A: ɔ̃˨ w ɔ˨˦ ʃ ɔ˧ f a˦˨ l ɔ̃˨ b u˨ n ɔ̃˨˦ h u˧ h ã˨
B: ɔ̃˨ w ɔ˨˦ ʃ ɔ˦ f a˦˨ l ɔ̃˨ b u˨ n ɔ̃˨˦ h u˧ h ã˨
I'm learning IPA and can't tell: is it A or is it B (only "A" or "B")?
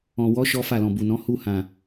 B